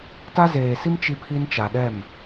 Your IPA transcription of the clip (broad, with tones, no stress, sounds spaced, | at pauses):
t a˦ z eː˨ s i˦ m t͡ʃ i˦ pʰ i˦ n t͡ʃ a˨ ɗ ɛ˦˨ m